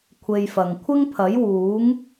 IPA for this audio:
kʷʰ e˧ j f ɐ˨ ŋ kʷʰ ɪ˥ ŋ pʰ ɐ˨˥ j w uː˨˥ ŋ

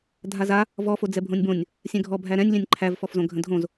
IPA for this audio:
dʱ a z a | v ɔ f o d͡z ɛ bʱ õ nʲ b õ nʲ | sʲ ɛ̃ ɡʱ ɔ bʱ æ ɾ ɛ̃ nʲ lʲ ɛ̃ nʲ ǃʰ æ v f ɔ f z õ ɡʱ ə̃ dʱ õ z

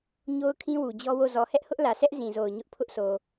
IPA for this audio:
ɲ o˦ ʊ̯ kʰ ĩ˦ w u˨ d͡ʑ ɔ˦ w o˦˨ z ɔ˨ h ɛ˦ ʔ h ʊ˦ ʔ l ä˨ s ɛ˦ ʔ z ĩ˨ z o˨ ʊ̯ ɲ ʊ˦ ʔ pʰ ʊ˦ ʔ s o˨

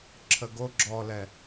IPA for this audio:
ǁʰ ə ɡ o ɡ͡ǁ ɔ l ɛ

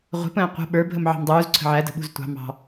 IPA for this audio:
ʁʷ ə̤ p ə̃ː qʷ ə̤ ɓ ə˞ bʱ ə m ʕ ɑ̤ m dˤ uː z ǀʰ ə̤ ʕ æ d ə̤ ɓ ṳ z tʷ ɑ̤ m ɑ̤

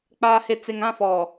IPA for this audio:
k͡p aː˨ h e˨ t͡s e˨ ŋ ã˦˨ f ɔ˨

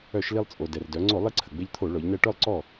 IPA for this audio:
œ˧˩˧ ʃ l i˧ lˠ t͡sʼ o˩ d ɛ˩ r d œ˩˧ ŋ͡ǀ o˧˩˧ lˠ i˧ ǀʰ ə˩ ɡ͡b e˧ ʎ t̪ʰ o˧˩˧ ɭ ɔ˩˧ ʎ n ɛ˧ ʈ œ˥˩ lˠ ǀ ɔ˥˩

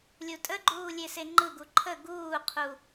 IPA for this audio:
lʲ u tʼ ə ɡ͡ǃ uː lʲ e s e ŋ͡ǃ ɯ ɡ u ǃʰ ə ɡ uː qʰ u

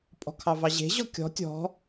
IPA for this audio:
pʼ ɔ̤ kʰ ɑ v ɑ ʑ e̤ ʑ ɔ kʲ ɔ̤ tʲ ɔ̤

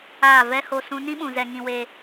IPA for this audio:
aː˦˨ v ɛ˦ h o˧ s ũ˧ n ĩ˦ ɓ ũ˨ z ɛ˧ ŋ ĩ˧ w e˧

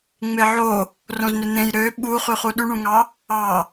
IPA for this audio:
ŋ͡m e ʕ o | r õ z n ø n̪ ẽ j ɾ ø ɓ u χ y χ u ɗ y ɳ ũ ŋ ɑ | ɑ

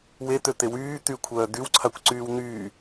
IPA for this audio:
w e t̪ ø t̪ e w yː t̪ y kʷʰ œː d̪ y w ǀʰ a kʷ ǀ yː w n̪ yː

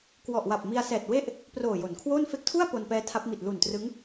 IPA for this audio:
k w ɔ˨˩ ʔ w a˨˩ p̚ m i˧ a̯ s ɛː˨˩ t̚ w e˥˩ ʔ | p r oː˨˩ j o˩˦ n kʰ w oː˥˩ n f e˦˥ k̚ tʰ u˥˩ a̯ p o˧ n p ɛː˦˥ tʰ a˦˥ p̚ m i˨˩ t̚ l u˨˩ n t r ɯ˦˥ ŋ

